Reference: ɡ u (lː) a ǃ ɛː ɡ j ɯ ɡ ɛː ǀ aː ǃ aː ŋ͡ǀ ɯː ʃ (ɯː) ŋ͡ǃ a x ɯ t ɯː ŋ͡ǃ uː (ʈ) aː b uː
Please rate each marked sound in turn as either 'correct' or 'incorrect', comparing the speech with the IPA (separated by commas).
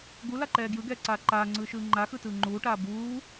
incorrect, correct, correct